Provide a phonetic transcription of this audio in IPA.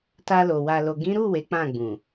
t a˧ l o˨ w a˨ l o˨ ɡ ĩ˨˦ ɾ u˦˨ w e˨˦ k͡p ã˦˨ ɡ͡b ũ˨

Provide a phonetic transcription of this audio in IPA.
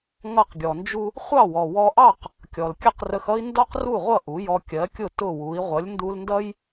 ŋ ʌ˥˩ q ɡʲ ɔ˩ n d͡ʒ u˥ | χʷ ɑ˥˩ w ɔ˩ w ɔ˧ ʔ ɑ˥˩ q | kʲ ɔ˩ l kʲ ə˥˩ q r ə˧ x ʌ˥ i̯ n d ɔ˥ q r u˥˩ ʁʷ ʌ˥˩ ʔ u˩˥ j ɔ˧ kʲ ɜ˩˥ kʲ ʊ˥˩ t ʊ˥˩ w u˩˥ i̯ ʁʷ ʌ˩˥ lʲ n d u˧ l n d ʌ˥ j

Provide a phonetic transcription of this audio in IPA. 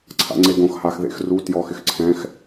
ǀʰ a̰ ŋ͡ǀ e ɡ õ x h a x ð ḛ x r u t j ɔ x ɪ x ǀʰ ɛ̃ x

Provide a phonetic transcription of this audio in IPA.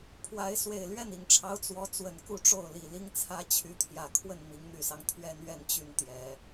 pʰ w a˧˥ ɪ̯ s w e˨˩ ɪ̯ l ɥ ɛ˥˩ n i˨˩ ŋ ʈ͡ʂʰ ɑ˧˥ ʊ̯ t͡s w ɔ˧˥ t͡s w ə˨˩ n k u˥˧ ʈ͡ʂ o˥˩ ʊ̯ l i˨˩ l i˥ ŋ t͡sʰ ä˥ t͡ɕʰ y˧˥ t̪ʰ j ä˨˩ kʰ w ə˥˩ n m i˧˥ ŋ n̪ y˨˩ s ɑ˦ ŋ t̪ʰ ɥ ɛ˥ n ɥ ɛ˥˧ n t͡ɕ y˥˩ n t̪ j ɛ˨˩˦

